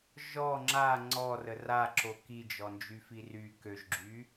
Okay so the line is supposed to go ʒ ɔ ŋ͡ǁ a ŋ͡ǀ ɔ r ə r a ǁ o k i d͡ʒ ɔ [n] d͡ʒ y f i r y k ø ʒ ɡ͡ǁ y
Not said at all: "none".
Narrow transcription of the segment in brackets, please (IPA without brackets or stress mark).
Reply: n